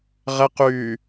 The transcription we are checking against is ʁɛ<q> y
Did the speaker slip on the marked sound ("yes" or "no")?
no